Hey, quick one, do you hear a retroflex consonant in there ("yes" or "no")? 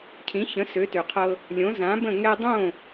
no